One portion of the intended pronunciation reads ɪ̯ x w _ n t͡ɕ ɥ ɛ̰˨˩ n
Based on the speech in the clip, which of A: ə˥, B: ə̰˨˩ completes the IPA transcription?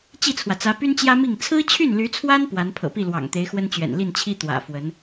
A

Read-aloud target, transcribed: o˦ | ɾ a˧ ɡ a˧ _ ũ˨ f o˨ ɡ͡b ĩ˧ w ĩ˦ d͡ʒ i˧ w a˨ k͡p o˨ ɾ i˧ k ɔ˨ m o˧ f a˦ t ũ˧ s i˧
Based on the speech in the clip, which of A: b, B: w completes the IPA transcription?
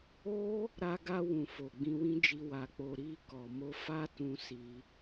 B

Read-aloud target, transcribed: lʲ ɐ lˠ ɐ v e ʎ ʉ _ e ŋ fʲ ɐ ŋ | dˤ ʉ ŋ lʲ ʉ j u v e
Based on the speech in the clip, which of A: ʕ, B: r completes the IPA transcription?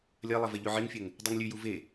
A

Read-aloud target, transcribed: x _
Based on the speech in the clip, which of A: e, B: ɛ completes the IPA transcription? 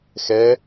B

